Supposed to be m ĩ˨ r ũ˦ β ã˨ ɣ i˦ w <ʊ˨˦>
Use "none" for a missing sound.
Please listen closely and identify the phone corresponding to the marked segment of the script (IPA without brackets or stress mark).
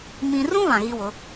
ʊ˨˦